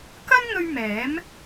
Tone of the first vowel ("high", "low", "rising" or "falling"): high